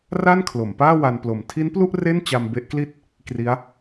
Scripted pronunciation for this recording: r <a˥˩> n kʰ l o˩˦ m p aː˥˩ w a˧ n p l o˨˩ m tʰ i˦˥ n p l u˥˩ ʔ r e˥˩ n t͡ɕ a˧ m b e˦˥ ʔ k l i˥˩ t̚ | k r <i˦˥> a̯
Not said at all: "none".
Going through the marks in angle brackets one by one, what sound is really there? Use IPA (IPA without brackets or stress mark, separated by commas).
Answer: a˥˩, i˦˥